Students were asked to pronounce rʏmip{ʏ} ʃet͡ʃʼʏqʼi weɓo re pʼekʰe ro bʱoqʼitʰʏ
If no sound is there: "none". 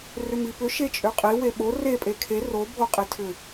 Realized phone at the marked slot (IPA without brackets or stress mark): ʏ